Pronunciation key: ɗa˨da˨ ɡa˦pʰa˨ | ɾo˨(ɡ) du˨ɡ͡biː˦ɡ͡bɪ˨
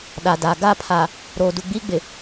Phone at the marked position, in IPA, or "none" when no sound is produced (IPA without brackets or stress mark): none